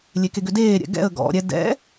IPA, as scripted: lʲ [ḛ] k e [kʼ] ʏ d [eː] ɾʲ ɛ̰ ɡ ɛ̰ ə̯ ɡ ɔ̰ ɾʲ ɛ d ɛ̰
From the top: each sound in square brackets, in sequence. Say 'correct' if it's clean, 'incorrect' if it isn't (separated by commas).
incorrect, incorrect, correct